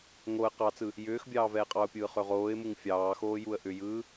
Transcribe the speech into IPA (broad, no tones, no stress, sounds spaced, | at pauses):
ŋ o ə̯ q ɑ t͡s ɯ | j ʏː x bʲ ɑː v ɛː qʼ ɑ ʊ̯ pʲ ɯː χ ø ʁ oː ɪ̯ m u ŋ fʲ ɑː x oː j u ə̯ ʔ ʏ j ɯː